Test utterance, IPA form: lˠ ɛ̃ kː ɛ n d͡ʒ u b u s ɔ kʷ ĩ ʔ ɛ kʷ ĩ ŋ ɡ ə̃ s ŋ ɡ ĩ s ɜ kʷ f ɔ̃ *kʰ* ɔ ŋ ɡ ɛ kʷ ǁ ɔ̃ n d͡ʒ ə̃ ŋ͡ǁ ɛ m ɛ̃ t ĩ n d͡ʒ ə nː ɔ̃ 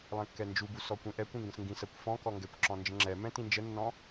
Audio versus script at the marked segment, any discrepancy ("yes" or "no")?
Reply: yes